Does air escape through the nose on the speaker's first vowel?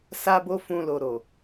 no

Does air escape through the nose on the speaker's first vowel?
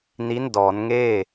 no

